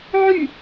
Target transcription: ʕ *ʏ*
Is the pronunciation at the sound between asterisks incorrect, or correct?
incorrect